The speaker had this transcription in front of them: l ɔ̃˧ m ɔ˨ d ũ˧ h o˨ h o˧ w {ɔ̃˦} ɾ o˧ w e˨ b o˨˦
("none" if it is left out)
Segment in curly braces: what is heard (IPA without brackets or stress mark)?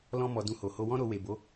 ɔ̃˦